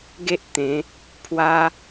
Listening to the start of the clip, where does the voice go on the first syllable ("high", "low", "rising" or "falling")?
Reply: high